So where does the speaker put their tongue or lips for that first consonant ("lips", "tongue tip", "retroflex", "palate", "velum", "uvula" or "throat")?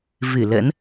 lips